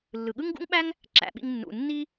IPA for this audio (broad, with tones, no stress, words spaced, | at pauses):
lːɯ˩ɠɯ˥ŋɡṵ˥ŋɓæ˥ŋ | ǁæ̰˩ɓḭ˧ŋ nːṵ˩nːi˥